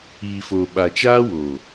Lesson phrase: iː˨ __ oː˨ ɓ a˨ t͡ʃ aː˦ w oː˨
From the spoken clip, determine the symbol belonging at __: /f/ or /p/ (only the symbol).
f